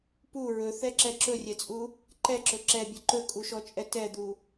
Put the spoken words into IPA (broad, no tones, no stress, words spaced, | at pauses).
pu ɹɵθɛǁɛ ǁɵrʲɛt͡sʼu | ǃɛǁɵ ǁɛbʲɵ ǃɵkʼuʃɔt͡ʃʼɛ tɛd̪u